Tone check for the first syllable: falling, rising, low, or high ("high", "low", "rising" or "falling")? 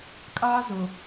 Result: high